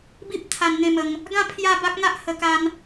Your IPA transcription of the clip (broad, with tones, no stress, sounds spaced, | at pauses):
b i˦ p̚ t̪ʰ a˧ n n̪ ẽ˥˧ m ə˧ ŋ | ɡ ã˥˧ pʰ j a˥˧ b a˦ k̚ n̪ a˦ ʔ h ə˧ k a˧ n